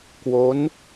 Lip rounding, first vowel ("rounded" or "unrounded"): rounded